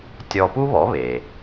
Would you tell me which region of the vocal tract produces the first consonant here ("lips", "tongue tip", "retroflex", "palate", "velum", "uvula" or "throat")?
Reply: tongue tip